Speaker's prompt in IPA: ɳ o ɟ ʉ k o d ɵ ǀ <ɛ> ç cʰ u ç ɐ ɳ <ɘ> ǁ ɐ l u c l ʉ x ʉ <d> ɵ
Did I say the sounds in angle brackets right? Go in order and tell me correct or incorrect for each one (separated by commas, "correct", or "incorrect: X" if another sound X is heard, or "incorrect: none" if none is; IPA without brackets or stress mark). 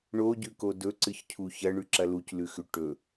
incorrect: ɨ, incorrect: ʉ, incorrect: ʈ